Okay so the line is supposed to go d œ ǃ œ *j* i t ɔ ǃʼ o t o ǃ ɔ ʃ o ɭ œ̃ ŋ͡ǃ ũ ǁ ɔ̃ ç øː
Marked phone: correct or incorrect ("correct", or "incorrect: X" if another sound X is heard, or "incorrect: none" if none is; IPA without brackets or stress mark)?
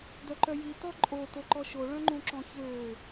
correct